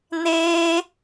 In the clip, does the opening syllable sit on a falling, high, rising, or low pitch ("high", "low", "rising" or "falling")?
high